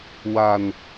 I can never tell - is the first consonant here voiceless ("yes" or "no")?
no